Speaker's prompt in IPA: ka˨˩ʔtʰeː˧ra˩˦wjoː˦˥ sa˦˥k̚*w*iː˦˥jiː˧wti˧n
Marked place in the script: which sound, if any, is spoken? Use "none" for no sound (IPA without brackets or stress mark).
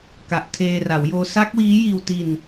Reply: w